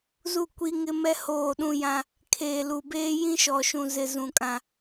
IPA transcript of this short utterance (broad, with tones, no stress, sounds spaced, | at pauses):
z u˦˨ kʷ i˦ ŋ ɪ˦ m ɛ˦ h oː˦˨ ɗ ũ˦ j ã˦ | kʰ eː˨ l u˨ b eː˦ j ĩ˦ ʃ ɔ˨ ʃ ũ˨ z ɪ˨ z ũ˨ kʼ ã˦